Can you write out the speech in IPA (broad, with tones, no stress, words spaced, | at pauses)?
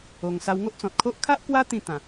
o˧ŋ sa˧wŋo˦ʔt͡sɔ̃˨t̚kʰo˦ʔ kʰa˦ʔkwa˦ t̪ĩ˥˧t̪ã˨˩